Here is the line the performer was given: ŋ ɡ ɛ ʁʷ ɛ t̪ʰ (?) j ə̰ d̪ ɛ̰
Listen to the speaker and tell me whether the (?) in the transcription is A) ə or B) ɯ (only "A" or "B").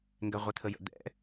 A